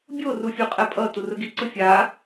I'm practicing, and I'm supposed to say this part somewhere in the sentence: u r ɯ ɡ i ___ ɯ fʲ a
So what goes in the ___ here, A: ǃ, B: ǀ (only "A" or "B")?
B